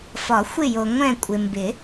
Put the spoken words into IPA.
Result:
f ɒ˨˩˦ xʷ ɪ˦˨ j o˨ ŋʷ ɛ̃˦˨ kʷʼ ɪ˨ m b ɪ˨˩˦

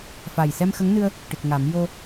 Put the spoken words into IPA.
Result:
f a˨˩ j s ɛ˧ m x ə˧˥ ŋ n ɨ˧ ə̯ | ʈ ɨ˨˩ k̚ ŋ a˨˩˦ m j o˧

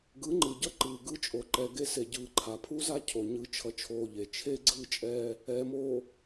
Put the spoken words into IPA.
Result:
ɡ ɯ˨˦ ŋ͡ǃ ɯ˨ ɟ ʌ˦ ǃ ɯː˨ ɡ ɯ˦ t͡ʃʼ o˨ ǃ ɛ˨ ɡ e˦ s e˨ ɟ ɯː˨ ǃʰ a˨ pʰ u˦ z a˦ cʰ o˨ ɲ ɯ˨˦ t͡ʃʰ ʌ˨ t͡ʃʰ oː˨ ʎ e˨ t͡ʃʰ e˦ ɡ͡ǀ ɯː˦ t͡ʃʼ ɛː˦ | ɛː˨ m oː˨

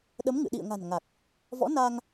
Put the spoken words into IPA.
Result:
ɗ ə˨˦ m ŋ ɨ̰˧˨ ɗ ḭ˧˨ ə̯ ŋ a̤˨˩ n ŋ a˨˩ k̚ | v ɔ̰˧˥ n a˧ ŋ

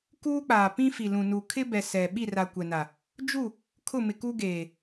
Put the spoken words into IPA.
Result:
k uː˦ k͡p aː˨ p ĩ˦ f i˨ l ũ˨ n u˨ kʰ ɪ˦ b ɛ˨ s ɛ˨ ɓ i˦˨ r a˨ kʷ ɛ˨ n a˨ | d͡ʒ u˦˨ | kʰ ʊ˦˨ m ɪ˨ k u˦ ɡ eː˨

